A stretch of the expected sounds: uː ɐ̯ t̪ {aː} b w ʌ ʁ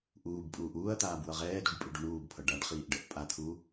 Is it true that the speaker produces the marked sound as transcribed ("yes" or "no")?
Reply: yes